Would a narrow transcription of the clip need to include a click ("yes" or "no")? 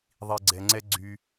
yes